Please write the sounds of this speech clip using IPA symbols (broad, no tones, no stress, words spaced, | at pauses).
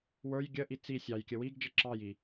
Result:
wə˞j ɡʲəʔi t͡si sʲɑjkʲə wiɡd͡ʒə ǁɑji